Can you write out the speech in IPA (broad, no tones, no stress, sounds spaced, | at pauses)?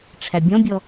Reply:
ʈ͡ʂʰ æ bʲ ɔ̃ bʲ ɔ